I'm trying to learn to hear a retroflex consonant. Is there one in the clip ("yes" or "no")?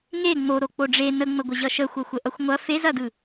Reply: yes